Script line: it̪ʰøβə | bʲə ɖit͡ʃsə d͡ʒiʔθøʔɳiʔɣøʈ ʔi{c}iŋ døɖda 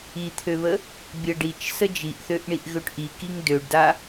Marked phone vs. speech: incorrect: k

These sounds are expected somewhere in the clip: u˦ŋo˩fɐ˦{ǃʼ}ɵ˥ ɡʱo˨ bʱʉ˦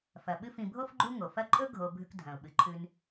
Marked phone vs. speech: correct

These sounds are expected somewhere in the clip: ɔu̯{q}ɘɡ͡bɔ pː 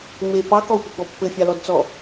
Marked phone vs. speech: incorrect: p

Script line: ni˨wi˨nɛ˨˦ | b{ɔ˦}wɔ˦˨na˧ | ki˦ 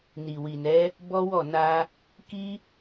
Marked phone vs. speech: correct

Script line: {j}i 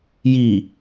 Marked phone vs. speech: correct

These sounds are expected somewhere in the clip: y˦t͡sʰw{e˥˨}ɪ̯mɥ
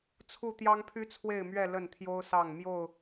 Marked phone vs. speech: correct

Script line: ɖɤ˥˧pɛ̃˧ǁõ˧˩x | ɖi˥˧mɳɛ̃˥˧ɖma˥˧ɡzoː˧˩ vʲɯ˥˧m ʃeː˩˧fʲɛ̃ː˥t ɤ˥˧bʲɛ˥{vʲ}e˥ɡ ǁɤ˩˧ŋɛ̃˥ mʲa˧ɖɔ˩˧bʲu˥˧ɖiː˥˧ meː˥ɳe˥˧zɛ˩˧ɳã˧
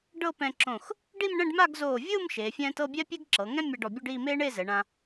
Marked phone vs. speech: incorrect: pʲ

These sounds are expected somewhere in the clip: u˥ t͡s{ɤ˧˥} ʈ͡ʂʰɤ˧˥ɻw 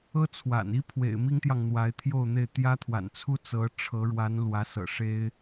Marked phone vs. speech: correct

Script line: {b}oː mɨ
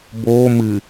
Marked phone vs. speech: correct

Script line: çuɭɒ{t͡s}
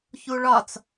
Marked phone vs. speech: correct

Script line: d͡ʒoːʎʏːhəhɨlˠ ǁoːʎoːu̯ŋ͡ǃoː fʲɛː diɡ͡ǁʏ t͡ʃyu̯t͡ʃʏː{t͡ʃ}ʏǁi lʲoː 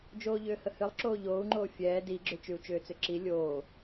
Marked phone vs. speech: incorrect: t͡s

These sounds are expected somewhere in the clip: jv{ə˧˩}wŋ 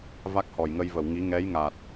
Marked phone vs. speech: correct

